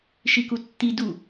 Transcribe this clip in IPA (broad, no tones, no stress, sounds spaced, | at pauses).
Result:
ʃ i k u tː i d u